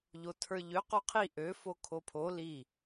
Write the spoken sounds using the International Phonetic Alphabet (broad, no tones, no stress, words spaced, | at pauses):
ʎotʰə˞ʎø qoqʰi ʔø fokʰopʰo li